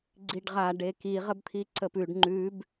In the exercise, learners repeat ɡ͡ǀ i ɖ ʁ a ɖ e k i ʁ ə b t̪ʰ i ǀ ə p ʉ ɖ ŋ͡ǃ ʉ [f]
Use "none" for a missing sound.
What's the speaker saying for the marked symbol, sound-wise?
b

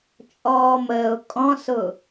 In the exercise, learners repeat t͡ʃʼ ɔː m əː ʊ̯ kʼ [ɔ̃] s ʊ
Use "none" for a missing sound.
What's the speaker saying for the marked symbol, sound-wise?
ɔ̃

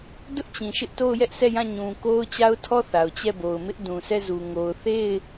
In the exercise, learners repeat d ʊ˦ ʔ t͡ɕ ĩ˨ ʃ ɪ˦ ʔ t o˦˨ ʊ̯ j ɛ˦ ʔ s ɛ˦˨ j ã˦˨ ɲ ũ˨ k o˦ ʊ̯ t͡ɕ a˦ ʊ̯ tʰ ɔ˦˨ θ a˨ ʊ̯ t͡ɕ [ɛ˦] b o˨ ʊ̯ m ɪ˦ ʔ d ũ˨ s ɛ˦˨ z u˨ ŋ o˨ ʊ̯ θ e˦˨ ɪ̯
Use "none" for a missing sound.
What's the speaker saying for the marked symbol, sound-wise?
ɛ˦˨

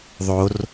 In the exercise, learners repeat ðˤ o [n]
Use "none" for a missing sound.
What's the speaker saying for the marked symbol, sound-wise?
r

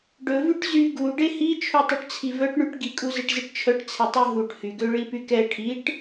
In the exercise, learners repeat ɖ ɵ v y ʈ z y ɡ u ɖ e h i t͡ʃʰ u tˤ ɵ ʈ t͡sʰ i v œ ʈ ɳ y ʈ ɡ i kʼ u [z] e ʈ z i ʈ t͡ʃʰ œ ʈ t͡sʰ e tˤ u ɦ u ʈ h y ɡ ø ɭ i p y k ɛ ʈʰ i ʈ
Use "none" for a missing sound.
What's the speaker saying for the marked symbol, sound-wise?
z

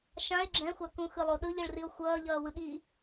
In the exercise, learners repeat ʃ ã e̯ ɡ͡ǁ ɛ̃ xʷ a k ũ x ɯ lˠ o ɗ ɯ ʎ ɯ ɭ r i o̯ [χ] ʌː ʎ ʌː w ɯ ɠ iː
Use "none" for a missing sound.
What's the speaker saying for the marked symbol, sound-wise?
xʷ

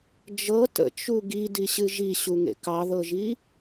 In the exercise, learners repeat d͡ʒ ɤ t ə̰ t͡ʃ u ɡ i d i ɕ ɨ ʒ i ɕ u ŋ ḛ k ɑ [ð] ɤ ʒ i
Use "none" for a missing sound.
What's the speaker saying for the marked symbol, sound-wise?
ð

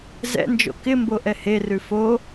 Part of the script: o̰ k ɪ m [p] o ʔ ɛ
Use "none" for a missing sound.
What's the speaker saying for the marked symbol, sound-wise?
b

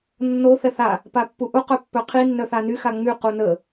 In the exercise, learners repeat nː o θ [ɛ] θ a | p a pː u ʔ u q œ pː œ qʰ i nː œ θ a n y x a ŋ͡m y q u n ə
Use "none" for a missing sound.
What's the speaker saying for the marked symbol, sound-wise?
ɛ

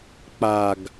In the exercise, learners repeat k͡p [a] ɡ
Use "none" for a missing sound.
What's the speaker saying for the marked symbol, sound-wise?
a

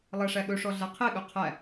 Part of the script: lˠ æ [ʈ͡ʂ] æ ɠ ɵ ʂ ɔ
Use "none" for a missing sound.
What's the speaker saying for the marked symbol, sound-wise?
ʂ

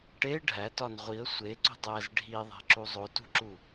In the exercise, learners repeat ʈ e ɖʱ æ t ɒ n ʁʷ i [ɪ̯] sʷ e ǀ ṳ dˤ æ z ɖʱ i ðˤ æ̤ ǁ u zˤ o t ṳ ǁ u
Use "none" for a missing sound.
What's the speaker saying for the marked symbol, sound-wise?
ə̯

